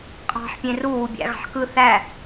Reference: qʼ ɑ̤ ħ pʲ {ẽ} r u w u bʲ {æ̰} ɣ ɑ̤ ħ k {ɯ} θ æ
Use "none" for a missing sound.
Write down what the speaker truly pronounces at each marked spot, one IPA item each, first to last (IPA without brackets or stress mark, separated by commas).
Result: ẽ, æ̰, ɯ